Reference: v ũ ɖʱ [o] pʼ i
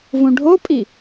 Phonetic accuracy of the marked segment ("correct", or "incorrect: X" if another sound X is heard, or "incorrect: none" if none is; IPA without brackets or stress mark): correct